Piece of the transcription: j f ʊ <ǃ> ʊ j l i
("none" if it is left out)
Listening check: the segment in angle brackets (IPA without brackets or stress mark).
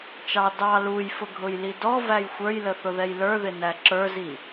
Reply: ɡʱ